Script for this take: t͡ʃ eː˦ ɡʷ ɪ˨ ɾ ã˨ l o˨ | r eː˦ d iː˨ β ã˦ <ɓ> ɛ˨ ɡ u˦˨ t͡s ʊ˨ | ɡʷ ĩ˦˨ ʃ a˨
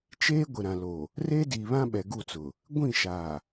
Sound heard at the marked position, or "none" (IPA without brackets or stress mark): ɓ